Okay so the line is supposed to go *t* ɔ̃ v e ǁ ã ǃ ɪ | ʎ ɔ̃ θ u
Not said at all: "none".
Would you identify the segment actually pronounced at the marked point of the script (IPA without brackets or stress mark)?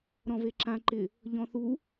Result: ɾ